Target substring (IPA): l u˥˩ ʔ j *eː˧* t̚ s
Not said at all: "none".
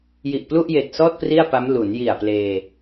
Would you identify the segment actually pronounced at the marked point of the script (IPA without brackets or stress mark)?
eː˨˩